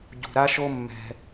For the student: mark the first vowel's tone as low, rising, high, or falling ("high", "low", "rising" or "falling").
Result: low